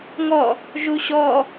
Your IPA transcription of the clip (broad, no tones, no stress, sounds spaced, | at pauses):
ŋ ɔ | ʒ u ɕ ɔ